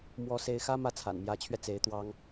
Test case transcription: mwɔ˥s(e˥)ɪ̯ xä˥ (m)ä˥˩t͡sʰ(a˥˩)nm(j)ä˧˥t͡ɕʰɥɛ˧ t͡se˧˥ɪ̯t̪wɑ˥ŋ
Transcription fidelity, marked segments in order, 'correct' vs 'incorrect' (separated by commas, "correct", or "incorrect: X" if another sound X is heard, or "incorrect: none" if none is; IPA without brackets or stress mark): correct, correct, incorrect: a̰˨˩, correct